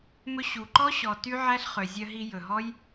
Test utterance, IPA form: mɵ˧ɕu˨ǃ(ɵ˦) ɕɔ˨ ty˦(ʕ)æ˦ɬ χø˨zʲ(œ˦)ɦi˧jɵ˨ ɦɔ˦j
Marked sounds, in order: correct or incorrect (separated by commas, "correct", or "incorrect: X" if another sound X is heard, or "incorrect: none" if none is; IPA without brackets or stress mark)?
incorrect: ɔ˦, correct, incorrect: œ˧